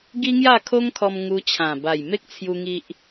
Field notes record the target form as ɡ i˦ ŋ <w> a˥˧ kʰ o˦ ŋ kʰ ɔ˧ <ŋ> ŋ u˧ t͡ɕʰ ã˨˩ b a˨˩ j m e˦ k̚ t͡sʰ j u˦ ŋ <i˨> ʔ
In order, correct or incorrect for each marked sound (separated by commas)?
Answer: incorrect, incorrect, incorrect